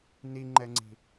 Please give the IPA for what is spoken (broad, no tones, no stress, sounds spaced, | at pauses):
n i ŋ͡ǃ ɛ ŋ͡ǀ i̤